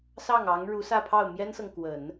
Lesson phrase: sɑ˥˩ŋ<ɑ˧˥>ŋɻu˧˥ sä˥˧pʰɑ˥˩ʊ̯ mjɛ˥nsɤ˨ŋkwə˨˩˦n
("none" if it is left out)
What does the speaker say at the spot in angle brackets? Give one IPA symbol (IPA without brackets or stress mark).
ɑ˧˥